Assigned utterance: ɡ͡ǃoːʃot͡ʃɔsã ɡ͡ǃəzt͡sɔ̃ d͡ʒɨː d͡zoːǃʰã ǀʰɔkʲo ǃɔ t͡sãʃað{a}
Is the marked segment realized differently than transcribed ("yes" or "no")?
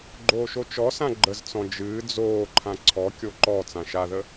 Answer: yes